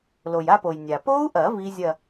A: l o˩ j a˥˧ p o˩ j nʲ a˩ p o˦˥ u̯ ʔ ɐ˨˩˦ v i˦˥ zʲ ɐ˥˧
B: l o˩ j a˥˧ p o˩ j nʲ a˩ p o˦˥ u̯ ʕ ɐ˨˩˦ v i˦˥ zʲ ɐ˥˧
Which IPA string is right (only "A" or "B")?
A